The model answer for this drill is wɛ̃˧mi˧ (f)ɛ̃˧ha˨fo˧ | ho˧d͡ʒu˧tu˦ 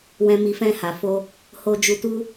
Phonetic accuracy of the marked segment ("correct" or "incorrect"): correct